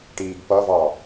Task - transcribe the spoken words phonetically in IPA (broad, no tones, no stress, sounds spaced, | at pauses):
ʈ iː ɡ p ʌ v ɑ